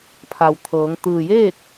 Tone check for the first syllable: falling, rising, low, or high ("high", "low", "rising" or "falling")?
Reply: low